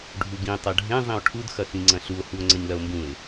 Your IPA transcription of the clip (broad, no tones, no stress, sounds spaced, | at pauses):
ɖʱ u ɡ ĩ tˤ ɐ ɖʱ ẽ zˤ ĩ o̯ ʈʰ u d x ɐ x ĩ ŋ͡ǀ ɐ̃ ɬ u o̯ h u o̯ ŋ͡ǀ ɐ ɲ l ɐ o̯ m b ũ e̯